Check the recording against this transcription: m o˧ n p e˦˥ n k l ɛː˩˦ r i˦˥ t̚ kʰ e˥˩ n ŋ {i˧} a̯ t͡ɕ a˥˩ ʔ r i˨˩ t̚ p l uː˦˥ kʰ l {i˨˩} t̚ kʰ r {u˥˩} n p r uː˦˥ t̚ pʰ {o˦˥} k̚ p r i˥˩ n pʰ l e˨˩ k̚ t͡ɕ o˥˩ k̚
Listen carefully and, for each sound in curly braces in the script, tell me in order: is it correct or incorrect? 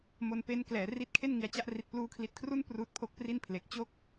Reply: incorrect: i˨˩, correct, correct, correct

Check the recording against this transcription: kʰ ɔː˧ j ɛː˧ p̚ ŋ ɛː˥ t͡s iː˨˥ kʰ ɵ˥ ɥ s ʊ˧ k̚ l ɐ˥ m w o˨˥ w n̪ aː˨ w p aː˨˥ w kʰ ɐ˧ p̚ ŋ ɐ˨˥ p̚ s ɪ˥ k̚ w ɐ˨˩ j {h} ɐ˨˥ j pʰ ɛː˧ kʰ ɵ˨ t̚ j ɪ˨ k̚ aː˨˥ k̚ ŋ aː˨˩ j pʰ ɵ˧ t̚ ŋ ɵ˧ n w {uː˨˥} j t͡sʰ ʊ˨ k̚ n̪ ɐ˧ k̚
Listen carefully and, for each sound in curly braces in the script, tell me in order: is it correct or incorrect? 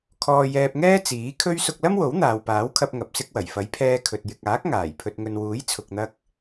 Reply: incorrect: f, correct

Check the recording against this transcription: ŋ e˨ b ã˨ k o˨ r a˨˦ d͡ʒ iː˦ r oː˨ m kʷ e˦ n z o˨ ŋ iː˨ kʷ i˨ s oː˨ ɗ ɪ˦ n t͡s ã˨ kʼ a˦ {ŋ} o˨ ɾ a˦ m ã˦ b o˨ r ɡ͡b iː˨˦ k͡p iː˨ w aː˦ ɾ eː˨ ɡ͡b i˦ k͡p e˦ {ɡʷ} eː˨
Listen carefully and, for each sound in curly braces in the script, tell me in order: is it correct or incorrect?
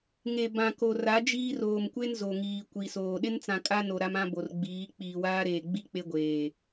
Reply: incorrect: n, correct

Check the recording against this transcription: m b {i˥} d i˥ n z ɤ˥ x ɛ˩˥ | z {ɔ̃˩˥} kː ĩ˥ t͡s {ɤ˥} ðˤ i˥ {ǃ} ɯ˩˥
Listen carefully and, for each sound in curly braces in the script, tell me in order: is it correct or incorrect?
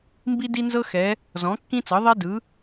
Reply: correct, correct, incorrect: ɤ˩˥, incorrect: d

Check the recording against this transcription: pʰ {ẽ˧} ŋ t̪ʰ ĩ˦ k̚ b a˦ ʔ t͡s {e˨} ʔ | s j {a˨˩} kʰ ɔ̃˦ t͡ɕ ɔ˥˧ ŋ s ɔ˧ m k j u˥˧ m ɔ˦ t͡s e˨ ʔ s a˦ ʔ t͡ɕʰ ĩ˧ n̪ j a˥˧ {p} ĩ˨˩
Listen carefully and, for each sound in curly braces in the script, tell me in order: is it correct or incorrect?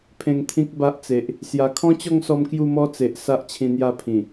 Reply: correct, correct, correct, incorrect: pʰ

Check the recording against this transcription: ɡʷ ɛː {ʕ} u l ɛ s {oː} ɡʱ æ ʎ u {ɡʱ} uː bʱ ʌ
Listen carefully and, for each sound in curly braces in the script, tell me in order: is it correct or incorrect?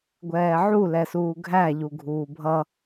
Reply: correct, incorrect: uː, correct

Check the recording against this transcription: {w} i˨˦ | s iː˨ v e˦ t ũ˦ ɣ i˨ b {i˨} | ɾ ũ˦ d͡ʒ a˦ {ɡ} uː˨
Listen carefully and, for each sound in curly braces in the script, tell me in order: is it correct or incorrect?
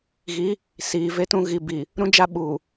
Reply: incorrect: ɣ, correct, incorrect: ɓ

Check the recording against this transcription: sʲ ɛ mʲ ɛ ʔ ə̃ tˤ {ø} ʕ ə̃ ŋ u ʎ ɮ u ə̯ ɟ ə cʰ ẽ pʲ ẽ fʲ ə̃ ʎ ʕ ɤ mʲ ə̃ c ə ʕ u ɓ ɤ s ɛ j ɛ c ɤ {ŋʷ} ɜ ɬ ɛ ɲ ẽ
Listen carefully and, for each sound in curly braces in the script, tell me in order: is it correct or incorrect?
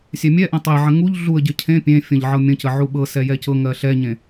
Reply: incorrect: e, incorrect: ŋ

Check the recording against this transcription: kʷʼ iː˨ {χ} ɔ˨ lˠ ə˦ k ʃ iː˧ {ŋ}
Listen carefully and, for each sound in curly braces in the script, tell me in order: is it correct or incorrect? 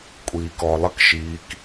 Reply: incorrect: k, incorrect: k

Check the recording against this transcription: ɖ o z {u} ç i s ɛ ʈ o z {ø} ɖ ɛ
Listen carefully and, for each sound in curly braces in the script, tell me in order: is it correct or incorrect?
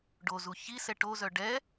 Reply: correct, incorrect: œ

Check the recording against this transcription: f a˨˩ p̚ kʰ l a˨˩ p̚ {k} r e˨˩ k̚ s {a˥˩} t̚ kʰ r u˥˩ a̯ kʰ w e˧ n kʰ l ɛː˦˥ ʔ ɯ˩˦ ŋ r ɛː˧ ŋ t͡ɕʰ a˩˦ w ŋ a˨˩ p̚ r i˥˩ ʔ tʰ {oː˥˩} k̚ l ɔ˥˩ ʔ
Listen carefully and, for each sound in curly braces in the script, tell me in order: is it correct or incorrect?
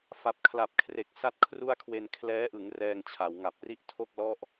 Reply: incorrect: kʰ, correct, incorrect: o˥˩

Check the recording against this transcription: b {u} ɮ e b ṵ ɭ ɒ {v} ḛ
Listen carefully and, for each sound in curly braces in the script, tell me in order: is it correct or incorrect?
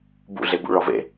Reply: incorrect: ṵ, correct

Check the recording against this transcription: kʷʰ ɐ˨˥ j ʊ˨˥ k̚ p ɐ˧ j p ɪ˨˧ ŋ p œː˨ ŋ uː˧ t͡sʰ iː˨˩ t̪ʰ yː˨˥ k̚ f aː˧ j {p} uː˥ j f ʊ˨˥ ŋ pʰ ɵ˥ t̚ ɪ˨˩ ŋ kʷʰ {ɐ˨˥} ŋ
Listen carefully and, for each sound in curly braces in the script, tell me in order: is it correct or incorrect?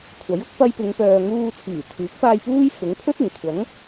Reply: correct, correct

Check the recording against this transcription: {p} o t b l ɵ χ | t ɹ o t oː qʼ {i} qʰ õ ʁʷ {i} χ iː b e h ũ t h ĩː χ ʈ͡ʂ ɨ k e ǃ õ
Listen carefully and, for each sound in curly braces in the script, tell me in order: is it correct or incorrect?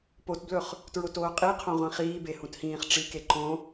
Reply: correct, correct, incorrect: ĩ

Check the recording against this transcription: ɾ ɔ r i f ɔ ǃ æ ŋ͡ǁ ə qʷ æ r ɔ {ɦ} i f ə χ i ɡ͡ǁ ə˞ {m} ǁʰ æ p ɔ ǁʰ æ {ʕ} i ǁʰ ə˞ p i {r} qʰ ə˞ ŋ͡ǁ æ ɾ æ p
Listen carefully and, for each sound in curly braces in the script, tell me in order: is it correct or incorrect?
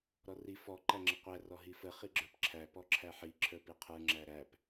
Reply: correct, incorrect: p, incorrect: ħ, incorrect: none

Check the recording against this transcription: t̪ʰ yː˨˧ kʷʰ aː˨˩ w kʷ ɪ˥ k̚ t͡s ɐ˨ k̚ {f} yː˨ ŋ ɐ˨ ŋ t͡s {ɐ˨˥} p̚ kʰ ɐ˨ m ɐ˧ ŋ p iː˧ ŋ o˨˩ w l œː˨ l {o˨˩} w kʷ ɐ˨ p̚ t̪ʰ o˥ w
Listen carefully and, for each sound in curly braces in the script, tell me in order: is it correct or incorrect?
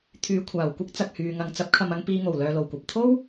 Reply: incorrect: h, correct, correct

